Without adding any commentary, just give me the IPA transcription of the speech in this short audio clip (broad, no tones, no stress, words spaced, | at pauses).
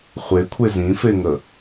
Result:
χʷekʷʰe zĩfeŋə